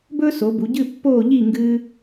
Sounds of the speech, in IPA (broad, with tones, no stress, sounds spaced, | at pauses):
b ɵː˥ s o˩˧ b u˩˧ ɟ ɨː˥˧ pː oː˥˧ ʎ iː˥˧ ŋ ɡ ɨː˥